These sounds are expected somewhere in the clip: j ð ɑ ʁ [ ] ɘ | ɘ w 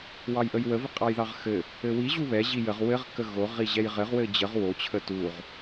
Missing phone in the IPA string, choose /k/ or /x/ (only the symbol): x